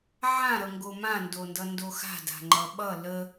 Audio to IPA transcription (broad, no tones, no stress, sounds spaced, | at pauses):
ʕ ã ɾ ʌ ŋ ɡ o m ã n d o n d ʌ n d o x a̤ d a̤ ŋ͡ǃ ʌ ɓ ʌ l ə